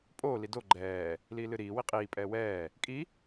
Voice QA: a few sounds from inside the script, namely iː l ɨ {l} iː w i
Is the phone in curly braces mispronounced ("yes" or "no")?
yes